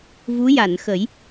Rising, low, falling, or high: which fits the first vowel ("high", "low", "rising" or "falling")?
rising